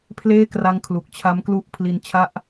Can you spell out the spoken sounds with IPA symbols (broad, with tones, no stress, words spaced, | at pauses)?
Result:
pʰleː˥˩kra˧ŋ kʰlu˨˩k̚ t͡ɕʰa˦˥m klu˥˩ʔ pʰli˧nt͡ɕʰa˥˩ʔ